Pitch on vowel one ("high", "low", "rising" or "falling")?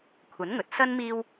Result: rising